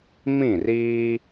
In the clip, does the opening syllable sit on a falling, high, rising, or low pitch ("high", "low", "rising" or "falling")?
falling